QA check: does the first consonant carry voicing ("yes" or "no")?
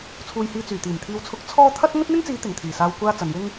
no